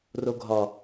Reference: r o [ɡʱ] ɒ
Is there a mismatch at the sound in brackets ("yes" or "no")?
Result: no